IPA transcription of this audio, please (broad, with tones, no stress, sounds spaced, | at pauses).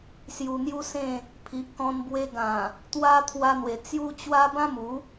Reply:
s j u˧ n̪ j u˦ s ẽ˥˧ | pʰ i˨ ʔ k ɔ̃˧ n b w e˧ ɡ ã˨˩ | t̪ w a˧ t̪ʰ w a˧ n̪ w e˨˩ t͡s j u˦ t͡ɕ w a˦ b ã˦ m u˨˦